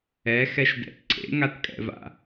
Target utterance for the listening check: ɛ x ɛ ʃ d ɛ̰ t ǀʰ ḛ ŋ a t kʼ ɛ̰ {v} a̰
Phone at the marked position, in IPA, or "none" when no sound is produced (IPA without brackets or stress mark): v